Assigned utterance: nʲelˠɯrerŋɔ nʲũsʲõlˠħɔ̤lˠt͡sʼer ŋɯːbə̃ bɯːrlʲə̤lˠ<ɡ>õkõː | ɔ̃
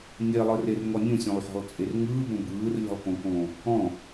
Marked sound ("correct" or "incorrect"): incorrect